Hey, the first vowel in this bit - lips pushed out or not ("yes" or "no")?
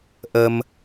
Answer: no